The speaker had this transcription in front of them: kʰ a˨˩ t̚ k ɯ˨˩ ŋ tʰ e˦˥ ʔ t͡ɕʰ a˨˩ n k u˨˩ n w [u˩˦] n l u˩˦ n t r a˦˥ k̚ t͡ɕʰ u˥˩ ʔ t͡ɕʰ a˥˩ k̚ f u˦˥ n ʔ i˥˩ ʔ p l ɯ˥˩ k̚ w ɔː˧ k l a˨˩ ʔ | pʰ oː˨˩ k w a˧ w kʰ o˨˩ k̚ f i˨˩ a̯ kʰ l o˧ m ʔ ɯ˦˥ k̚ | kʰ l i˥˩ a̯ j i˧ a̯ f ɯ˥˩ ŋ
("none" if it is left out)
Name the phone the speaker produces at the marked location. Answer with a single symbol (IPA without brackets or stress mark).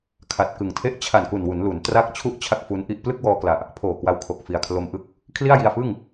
u˩˦